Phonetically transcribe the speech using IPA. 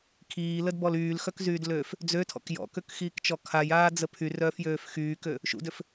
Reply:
kʰ iː l ə d b ɔ l yː l x œ k z yː d l øː f | d͡z ø tʰ ɔ̰ k j ɔ̰ k ø k x iː k t͡ʃ ɔ kʰ a j aː d͡z ə pʰ y r œː f j øː f x yː k ø | ʃ ṵ d ø f

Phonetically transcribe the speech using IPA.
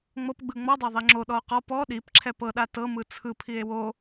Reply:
ŋ͡m ɤ p ɡ͡b ɯ ŋ͡m ɔ dˤ a ðˤ i ŋ͡ǁ o ɗ ɔ o̯ q ɔ p ɔ ɗ i p ǁʰ ɛ p ɤ ɗ a t ɤ m ɯ t͡sʰ ɯ pʰ i e̯ w o

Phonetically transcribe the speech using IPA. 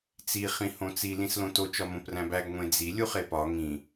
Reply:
t͡s i χ ĩ h õ t͡s i l ĩ s l õ t o t͡ʃ ɒ m õ p r æ̃ b æ ɡ ŋʷ ẽ d͡z i lʲ u χ e p ɒ ŋ ĩ

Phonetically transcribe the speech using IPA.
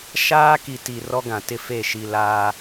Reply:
ʃ aː˦ k i˨ t i˨ r ɔ˦ ɡ ã˨ t ɪ˦˨ f e˦˨ ʃ i˨ l aː˦

